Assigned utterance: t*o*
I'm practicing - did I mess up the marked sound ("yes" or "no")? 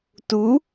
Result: yes